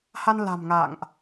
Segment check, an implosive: absent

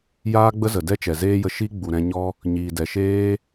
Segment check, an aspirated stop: absent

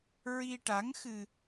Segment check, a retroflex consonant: present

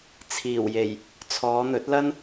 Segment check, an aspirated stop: present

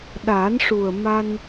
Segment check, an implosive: present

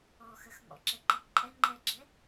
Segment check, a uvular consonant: absent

